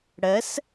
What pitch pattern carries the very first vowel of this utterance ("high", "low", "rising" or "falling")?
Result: rising